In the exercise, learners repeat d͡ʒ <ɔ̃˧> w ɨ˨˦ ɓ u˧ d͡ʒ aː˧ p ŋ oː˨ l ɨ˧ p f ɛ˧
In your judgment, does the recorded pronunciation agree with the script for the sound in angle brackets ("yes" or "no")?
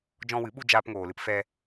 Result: yes